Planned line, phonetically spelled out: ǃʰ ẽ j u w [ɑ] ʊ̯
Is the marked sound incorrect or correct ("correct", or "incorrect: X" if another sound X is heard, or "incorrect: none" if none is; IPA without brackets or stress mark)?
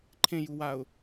incorrect: a